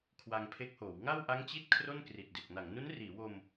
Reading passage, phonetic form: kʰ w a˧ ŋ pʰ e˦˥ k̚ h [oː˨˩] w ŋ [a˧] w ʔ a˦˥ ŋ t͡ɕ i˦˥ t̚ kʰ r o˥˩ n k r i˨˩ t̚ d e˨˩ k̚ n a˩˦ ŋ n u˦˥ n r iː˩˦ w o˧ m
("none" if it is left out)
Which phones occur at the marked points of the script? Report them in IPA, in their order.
oː˩˦, a˥˩

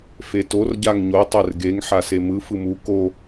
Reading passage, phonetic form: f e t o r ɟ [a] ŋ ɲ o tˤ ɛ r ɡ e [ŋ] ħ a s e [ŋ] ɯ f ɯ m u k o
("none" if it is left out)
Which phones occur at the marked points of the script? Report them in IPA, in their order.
a, ŋ, m

